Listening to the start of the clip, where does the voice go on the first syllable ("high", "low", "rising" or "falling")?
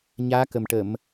rising